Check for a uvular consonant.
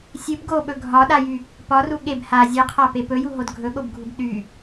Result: present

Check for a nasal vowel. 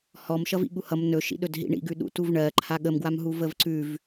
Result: absent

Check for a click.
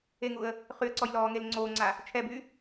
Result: present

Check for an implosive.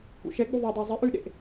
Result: present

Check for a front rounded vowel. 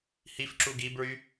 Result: present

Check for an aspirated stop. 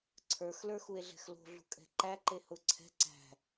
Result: present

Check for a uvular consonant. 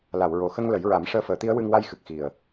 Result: absent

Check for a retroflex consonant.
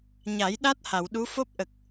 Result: absent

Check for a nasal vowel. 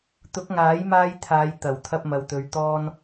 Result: absent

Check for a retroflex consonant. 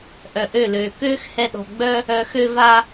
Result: absent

